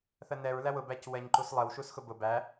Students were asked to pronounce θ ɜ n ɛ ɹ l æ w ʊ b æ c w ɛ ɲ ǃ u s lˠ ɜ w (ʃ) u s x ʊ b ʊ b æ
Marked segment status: correct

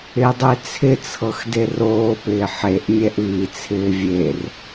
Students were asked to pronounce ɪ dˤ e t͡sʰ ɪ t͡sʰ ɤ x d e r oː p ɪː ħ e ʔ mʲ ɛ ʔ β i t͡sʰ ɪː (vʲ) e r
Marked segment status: correct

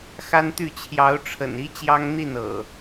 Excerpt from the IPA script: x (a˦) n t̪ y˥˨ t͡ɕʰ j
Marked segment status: correct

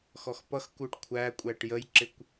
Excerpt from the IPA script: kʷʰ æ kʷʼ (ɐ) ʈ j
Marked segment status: incorrect: æ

